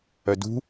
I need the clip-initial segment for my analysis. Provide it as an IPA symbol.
œ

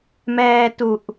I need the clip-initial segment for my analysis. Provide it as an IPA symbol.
m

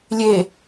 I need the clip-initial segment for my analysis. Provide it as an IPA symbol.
lʲ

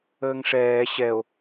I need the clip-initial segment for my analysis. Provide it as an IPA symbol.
əː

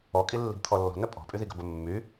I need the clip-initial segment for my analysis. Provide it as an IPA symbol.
ɔ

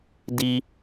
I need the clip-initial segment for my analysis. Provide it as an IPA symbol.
d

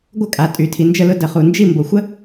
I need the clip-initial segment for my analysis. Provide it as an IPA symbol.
ɡʷ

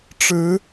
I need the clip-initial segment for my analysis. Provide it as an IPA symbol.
ʈ͡ʂ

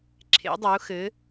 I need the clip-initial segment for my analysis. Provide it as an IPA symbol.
ǁʰ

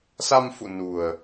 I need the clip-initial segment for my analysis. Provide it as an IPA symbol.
s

